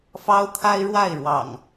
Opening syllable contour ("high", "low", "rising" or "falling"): high